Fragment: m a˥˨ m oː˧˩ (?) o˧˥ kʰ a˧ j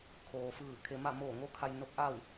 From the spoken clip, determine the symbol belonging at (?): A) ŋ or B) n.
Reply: A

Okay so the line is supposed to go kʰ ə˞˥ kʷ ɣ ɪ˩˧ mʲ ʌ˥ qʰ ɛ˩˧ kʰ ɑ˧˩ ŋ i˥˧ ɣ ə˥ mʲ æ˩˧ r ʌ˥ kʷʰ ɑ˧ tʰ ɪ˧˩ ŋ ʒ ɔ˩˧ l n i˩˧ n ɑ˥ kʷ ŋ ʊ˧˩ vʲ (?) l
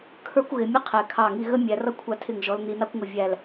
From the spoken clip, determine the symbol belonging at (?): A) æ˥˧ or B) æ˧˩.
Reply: B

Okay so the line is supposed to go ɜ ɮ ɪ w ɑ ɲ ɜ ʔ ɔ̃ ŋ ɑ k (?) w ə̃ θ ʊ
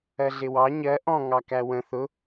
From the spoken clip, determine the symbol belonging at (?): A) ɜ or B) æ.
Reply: B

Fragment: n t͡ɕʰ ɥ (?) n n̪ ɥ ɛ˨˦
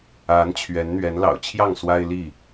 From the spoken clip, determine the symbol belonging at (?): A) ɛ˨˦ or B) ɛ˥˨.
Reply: A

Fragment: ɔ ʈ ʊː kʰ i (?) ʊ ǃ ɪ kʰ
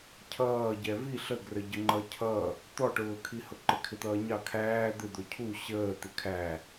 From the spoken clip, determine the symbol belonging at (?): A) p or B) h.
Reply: B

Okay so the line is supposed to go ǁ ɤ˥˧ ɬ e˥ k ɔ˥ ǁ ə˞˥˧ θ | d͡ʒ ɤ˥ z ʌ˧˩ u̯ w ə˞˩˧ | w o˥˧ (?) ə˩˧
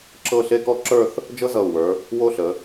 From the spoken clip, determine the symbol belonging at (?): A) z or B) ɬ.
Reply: B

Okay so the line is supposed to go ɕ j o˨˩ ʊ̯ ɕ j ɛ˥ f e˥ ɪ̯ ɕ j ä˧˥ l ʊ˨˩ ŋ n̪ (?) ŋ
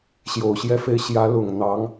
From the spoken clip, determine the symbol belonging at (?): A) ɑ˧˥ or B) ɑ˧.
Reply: A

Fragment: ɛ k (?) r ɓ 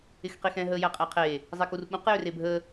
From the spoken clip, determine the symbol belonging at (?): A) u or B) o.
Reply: A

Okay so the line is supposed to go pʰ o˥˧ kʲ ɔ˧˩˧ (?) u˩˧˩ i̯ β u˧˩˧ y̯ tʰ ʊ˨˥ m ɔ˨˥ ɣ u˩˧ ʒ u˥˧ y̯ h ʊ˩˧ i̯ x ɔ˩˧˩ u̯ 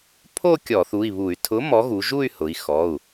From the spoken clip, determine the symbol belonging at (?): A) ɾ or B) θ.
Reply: B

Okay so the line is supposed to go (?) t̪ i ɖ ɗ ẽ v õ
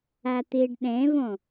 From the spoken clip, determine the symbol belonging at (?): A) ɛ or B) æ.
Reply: B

